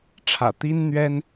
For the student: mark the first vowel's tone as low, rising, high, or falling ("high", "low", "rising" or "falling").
low